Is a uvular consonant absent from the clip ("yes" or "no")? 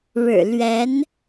yes